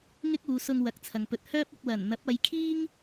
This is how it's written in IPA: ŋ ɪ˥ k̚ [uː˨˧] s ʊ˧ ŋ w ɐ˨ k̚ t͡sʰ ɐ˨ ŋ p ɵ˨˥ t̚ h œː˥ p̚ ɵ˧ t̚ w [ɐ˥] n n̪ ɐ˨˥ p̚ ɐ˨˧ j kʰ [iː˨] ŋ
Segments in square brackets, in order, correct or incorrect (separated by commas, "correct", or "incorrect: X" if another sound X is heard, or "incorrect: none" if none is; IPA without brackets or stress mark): correct, incorrect: ɐ˨˩, incorrect: iː˥